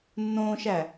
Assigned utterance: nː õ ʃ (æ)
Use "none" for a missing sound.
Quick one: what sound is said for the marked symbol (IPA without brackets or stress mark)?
æ